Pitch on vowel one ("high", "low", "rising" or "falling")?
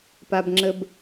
low